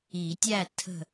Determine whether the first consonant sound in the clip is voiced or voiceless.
voiceless